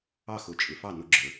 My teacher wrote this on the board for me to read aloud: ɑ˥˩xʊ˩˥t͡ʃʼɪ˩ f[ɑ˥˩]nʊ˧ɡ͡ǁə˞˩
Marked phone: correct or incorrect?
correct